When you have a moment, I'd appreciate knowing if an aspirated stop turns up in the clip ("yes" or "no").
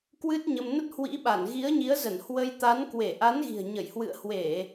no